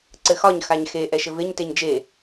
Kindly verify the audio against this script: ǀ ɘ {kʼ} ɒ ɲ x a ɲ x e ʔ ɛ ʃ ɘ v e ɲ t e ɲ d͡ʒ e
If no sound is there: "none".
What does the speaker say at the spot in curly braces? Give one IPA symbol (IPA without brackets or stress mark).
x